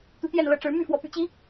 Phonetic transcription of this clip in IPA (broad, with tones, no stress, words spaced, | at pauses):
t̪u˨˦t̪jɛ˥˨nlɤ˨˦ʈ͡ʂɻ̩˨˦ my˥˨fwɔ˨˦py̰˨˩t͡ɕi˨˦